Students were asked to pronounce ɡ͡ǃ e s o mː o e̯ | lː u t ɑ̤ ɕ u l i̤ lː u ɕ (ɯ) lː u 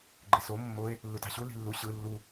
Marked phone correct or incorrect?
correct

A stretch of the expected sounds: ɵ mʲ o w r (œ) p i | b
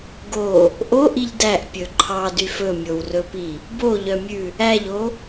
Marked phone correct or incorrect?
incorrect: ɵ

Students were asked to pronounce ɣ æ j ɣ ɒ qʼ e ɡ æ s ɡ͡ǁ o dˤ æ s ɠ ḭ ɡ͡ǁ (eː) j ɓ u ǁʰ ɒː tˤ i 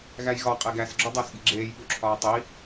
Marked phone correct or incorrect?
correct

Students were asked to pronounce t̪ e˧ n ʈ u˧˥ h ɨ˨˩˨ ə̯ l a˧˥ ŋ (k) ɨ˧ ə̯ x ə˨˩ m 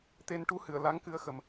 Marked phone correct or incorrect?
correct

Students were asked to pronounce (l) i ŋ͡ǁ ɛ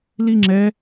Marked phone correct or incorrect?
correct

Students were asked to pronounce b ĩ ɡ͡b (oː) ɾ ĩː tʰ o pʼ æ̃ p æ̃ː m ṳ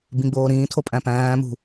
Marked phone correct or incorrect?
correct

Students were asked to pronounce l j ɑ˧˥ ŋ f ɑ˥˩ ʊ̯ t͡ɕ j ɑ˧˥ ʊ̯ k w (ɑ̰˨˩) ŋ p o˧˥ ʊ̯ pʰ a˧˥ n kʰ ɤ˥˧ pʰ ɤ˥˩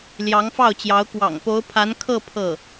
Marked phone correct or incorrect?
correct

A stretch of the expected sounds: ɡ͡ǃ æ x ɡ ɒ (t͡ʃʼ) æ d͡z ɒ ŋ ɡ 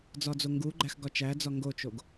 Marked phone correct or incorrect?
incorrect: t͡ʃ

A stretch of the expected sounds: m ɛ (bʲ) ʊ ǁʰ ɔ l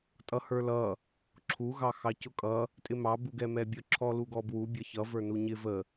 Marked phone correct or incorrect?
correct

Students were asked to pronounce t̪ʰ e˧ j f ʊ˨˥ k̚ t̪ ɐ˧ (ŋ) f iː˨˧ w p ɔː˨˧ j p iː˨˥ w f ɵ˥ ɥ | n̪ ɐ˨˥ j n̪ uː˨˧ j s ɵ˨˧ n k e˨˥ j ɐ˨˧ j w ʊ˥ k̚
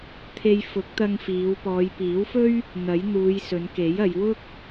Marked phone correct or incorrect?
correct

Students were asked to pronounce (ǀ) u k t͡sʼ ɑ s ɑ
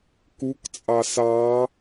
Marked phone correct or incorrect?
incorrect: k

